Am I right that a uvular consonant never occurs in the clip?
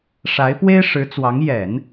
yes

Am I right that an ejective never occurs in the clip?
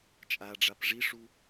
no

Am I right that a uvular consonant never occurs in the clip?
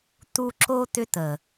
yes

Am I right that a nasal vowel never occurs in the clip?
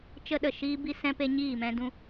no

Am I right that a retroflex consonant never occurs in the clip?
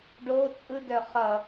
no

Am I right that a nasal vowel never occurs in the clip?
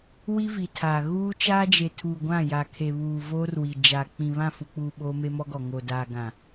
no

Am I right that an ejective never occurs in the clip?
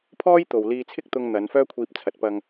yes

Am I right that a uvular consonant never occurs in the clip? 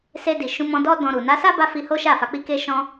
yes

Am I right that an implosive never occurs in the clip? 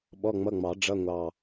no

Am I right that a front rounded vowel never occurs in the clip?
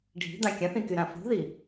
no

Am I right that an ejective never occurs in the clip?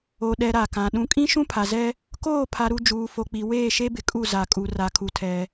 no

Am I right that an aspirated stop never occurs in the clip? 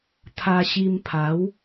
no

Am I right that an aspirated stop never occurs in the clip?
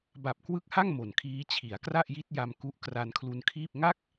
no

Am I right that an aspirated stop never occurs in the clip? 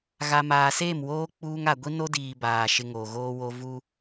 yes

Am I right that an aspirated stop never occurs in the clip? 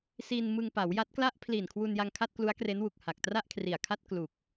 no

